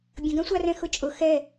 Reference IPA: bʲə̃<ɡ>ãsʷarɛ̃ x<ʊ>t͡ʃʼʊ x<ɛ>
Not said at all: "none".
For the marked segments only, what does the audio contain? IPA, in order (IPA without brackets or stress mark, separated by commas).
ɡ, ʊ, ɛ